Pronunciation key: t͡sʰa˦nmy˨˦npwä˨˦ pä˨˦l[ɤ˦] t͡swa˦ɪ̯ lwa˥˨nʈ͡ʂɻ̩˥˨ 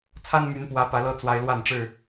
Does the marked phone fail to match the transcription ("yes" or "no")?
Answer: no